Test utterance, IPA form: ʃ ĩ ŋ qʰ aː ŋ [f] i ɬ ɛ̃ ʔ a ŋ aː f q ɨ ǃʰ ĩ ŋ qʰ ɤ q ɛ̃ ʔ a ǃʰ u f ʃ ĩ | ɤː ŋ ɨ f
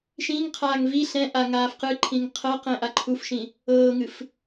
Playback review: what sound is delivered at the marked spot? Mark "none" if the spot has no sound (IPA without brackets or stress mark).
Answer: v